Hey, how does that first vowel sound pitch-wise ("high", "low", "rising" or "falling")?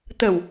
low